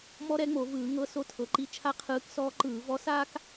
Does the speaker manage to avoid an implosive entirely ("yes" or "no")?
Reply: yes